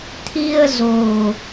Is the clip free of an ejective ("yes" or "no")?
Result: yes